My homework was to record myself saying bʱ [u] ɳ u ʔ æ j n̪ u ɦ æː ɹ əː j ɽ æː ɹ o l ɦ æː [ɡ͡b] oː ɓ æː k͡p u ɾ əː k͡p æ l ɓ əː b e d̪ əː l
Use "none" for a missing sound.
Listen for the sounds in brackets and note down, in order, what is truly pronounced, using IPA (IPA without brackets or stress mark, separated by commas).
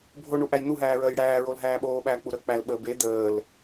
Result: o, ɓ